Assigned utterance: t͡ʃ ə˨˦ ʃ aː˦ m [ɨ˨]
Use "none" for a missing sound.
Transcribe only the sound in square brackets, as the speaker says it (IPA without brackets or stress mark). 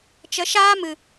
ɨ˨